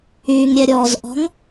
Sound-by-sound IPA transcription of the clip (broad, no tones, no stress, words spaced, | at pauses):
yŋɾʲɛɾʲɔːzʔɔ̤ŋ